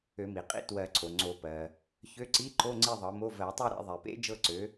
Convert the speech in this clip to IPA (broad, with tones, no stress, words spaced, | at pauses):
ø˨˩˦mi˩qʼḭ˧˥˧ twɜ˨˩˦ ǀʰo˩ŋ͡ǀo˨˩˦pɜ˩ | çø˧˥˧ǀi˧˥˧ǃo˧˥˧ ŋ͡ǀi˥˧ðˤɤ˩˥mo˧˥˧ vɜ˨˩˦tˤø˥˧ ɾḛ˥˧ ðˤe˩pḛ˧˥˧ d͡ʒɤ˥˧ǀø˩˥